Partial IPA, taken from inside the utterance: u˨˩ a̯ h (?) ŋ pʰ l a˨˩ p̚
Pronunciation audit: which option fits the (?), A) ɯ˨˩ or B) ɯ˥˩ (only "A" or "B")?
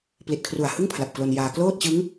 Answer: B